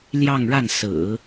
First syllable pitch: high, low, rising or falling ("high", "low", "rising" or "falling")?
falling